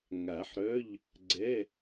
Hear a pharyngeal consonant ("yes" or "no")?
yes